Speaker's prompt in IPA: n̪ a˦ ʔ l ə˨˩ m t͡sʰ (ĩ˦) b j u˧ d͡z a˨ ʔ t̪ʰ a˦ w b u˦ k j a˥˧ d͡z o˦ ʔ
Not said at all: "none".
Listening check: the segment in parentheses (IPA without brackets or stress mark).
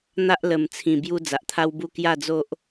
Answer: ĩ˨˩